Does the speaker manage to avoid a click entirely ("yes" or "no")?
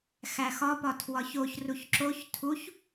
no